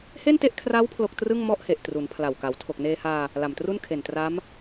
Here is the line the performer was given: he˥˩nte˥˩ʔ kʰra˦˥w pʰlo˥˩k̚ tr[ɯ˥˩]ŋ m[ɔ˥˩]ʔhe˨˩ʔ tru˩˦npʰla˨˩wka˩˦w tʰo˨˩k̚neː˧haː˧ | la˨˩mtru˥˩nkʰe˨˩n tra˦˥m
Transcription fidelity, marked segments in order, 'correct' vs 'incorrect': correct, correct

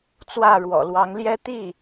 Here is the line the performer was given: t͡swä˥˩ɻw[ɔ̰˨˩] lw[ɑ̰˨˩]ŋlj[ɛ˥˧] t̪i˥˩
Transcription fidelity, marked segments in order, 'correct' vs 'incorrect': correct, incorrect: ɑ˧˥, incorrect: ɛ˥

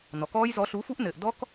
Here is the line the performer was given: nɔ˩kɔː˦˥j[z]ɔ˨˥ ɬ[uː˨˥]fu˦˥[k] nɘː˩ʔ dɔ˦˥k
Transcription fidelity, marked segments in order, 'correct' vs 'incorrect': correct, correct, incorrect: ʔ

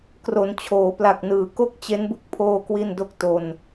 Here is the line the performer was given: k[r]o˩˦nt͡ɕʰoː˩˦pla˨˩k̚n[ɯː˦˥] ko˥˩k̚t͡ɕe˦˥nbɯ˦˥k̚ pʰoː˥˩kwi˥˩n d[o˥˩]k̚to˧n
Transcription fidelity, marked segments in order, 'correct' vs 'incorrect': correct, incorrect: ɯː˩˦, incorrect: o˦˥

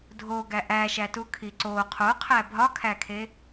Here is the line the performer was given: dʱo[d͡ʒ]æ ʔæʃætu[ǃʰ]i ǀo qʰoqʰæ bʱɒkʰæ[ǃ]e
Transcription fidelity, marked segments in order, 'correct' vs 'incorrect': incorrect: ɡ, incorrect: kʰ, incorrect: kʰ

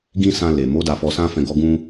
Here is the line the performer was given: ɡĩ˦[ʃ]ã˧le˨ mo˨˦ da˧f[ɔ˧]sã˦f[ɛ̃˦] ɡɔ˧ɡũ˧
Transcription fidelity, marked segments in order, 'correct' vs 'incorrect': incorrect: s, correct, incorrect: ɛ̃˧

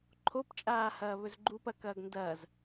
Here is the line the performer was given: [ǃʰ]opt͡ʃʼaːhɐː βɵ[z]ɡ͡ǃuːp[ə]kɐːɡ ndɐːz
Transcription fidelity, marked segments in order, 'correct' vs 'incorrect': correct, correct, incorrect: ɐ

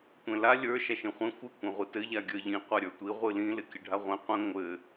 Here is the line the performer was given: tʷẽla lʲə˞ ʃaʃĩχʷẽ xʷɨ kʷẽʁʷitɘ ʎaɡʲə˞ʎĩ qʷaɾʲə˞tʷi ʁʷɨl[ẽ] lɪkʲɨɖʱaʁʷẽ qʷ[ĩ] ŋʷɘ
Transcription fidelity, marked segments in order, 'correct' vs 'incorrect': incorrect: ĩ, correct

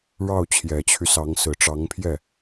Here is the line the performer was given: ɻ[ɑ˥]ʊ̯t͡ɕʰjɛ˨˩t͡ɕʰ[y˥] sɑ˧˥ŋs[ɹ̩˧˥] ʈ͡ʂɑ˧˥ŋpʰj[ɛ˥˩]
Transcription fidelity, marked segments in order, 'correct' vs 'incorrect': incorrect: ɑ˥˩, incorrect: y˦, incorrect: ɹ̩˨˩, correct

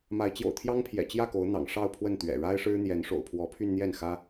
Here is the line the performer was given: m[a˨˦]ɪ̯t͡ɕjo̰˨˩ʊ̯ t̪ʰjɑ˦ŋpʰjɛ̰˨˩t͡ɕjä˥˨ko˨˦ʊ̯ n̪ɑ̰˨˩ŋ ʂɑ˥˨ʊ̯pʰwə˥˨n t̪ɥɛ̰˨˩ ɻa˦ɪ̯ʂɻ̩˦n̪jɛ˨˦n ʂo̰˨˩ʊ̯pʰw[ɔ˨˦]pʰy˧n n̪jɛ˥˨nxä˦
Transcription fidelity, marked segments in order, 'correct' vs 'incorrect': correct, correct

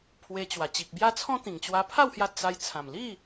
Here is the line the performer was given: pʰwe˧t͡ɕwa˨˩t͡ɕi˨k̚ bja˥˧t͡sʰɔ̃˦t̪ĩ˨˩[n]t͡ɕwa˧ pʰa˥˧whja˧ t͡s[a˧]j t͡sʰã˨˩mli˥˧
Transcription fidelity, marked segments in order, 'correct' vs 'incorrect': incorrect: ŋ, correct

